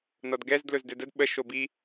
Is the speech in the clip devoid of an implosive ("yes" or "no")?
no